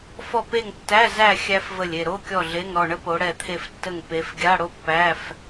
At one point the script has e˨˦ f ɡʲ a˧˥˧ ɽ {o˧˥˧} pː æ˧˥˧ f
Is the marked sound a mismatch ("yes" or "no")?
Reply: yes